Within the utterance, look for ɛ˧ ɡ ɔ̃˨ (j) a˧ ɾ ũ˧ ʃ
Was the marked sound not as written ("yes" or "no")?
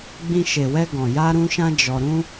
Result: no